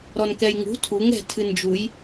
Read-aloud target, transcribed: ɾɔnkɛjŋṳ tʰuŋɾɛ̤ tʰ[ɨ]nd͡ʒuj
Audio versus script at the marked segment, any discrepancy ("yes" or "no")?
no